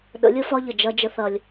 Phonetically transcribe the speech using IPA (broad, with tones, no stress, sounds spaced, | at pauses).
ɗ ə̰˨˦ lʲ ə˦ f ɒ˦ ʎ ə˨ d͡ʒ ɐ˦ d͡ʒ ə˦ θ ɐ˦ lʲ